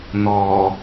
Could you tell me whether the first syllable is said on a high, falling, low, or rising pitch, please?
low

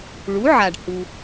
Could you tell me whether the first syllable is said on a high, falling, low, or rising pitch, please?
rising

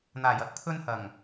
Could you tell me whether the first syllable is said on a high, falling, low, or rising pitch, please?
low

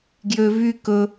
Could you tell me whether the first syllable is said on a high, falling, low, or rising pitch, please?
high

